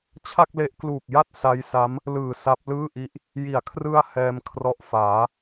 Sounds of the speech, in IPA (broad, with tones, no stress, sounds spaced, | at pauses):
t͡ɕʰ a˥˩ k̚ l e˦˥ ʔ k l uː˨˩ k̚ j a˥˩ t̚ s a˦˥ j s a˦˥ m | l ɯː˨˩ s a˦˥ p̚ l ɯː˥˩ ʔ i˦˥ ʔ | j i˩˦ a̯ kʰ r ɯ˧ a̯ h ɛː˧ m kʰ r ɔ˦˥ ʔ f aː˩˦